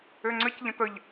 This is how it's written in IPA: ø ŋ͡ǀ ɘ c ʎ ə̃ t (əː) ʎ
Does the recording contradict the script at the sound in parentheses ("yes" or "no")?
yes